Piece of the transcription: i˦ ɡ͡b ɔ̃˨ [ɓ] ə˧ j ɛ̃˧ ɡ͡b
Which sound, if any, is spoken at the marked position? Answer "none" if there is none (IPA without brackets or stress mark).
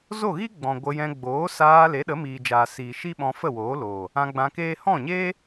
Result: ɡʷ